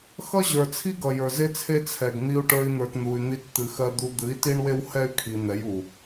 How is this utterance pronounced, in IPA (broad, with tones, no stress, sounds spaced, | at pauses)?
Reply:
x ʌ˦ ʑ ə˞˨ t͡sʰ i˦ ɡ ʌ˨ j ə˞˨ z e˦ t͡sʰ e˦ t͡sʰ ɛ˨ ɡ n̪ i˧ u̯ ʈ ə˞˧ i̯ n̪ ə˞˨ t n̪ u˨ y̯ n̪ i˧ t t̪ ɨ˨ x ɜ˧ d̪ u˧ d̪ ɨ˨˦ i̯ t i˦ ɳ w e˦ w h ɛ˦ y̯ kʰ i˨ n̪ ɛ˨˦ j u˨